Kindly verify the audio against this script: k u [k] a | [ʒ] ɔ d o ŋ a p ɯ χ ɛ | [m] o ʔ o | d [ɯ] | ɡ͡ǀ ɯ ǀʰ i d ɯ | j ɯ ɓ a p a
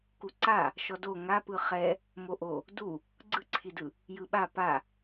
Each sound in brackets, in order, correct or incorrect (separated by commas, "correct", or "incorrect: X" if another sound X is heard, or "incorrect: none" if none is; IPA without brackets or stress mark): incorrect: ǀ, incorrect: ʃ, correct, incorrect: u